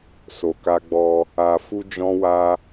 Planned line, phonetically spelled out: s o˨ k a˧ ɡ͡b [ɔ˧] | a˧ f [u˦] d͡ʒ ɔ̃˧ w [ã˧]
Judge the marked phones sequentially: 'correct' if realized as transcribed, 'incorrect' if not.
correct, incorrect, incorrect

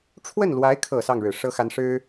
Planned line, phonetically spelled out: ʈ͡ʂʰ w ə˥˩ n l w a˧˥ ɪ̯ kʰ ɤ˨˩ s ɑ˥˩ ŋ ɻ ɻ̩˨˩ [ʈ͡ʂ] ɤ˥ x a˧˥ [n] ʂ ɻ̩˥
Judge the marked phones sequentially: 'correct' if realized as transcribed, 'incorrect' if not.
incorrect, correct

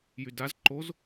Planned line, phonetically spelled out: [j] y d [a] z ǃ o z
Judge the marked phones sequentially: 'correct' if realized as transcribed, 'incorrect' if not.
correct, correct

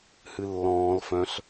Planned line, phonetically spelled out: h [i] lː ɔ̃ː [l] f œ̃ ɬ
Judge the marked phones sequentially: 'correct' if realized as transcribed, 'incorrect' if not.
incorrect, correct

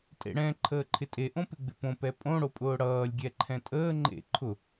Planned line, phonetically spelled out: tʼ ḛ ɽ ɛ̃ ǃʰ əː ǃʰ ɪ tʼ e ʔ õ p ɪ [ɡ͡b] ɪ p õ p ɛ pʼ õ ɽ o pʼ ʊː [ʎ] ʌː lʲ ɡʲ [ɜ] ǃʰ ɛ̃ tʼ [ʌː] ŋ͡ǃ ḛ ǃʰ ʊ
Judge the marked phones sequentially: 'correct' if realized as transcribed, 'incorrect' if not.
correct, incorrect, incorrect, incorrect

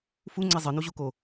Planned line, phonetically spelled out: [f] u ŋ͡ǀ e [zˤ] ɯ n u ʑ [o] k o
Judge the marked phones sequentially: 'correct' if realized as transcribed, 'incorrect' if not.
correct, correct, incorrect

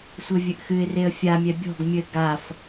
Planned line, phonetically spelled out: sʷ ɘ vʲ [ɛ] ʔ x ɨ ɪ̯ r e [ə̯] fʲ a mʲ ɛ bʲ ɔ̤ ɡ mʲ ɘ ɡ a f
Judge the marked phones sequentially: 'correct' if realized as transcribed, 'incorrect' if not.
incorrect, correct

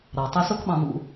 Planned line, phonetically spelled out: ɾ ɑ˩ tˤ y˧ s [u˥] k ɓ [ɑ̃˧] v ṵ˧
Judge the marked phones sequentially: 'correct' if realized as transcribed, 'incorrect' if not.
incorrect, correct

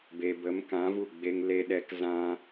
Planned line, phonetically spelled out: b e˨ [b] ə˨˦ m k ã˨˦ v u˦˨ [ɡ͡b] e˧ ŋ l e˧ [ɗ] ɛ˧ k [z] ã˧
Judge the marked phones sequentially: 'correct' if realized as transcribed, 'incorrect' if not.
correct, correct, correct, correct

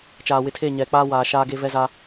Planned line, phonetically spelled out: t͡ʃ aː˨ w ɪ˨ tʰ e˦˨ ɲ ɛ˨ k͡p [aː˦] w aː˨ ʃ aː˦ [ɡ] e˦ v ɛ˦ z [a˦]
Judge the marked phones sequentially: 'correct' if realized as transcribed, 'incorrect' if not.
correct, correct, correct

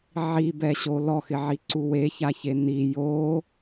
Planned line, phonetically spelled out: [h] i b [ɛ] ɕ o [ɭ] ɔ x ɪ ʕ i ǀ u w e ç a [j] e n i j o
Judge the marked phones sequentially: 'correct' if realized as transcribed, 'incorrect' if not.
incorrect, correct, incorrect, incorrect

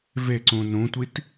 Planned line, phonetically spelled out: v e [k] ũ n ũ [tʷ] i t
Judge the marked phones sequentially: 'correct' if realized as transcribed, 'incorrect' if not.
incorrect, correct

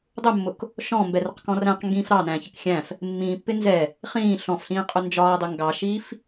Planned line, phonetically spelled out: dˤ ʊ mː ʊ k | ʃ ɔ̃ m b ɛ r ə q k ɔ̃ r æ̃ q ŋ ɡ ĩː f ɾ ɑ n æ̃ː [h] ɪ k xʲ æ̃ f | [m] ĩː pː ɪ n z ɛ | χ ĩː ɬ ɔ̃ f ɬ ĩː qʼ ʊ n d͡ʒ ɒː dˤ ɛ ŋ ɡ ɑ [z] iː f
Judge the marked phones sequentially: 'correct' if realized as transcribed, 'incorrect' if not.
incorrect, incorrect, incorrect

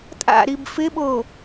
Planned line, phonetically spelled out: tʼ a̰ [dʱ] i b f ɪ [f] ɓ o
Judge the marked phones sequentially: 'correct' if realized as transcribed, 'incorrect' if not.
incorrect, incorrect

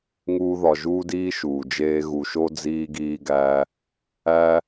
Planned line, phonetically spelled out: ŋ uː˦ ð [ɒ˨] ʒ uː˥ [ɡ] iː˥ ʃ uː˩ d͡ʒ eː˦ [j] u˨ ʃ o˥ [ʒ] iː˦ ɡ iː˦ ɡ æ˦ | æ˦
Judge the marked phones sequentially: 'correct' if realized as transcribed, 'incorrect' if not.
correct, incorrect, incorrect, incorrect

